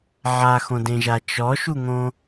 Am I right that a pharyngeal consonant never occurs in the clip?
no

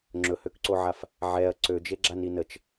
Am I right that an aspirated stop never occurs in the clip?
yes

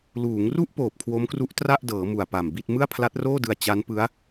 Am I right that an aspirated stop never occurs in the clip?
no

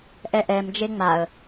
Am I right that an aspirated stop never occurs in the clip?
yes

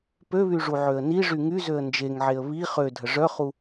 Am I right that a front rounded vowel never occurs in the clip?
no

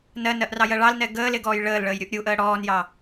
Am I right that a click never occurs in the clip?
yes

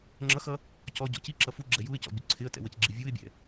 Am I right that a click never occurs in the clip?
no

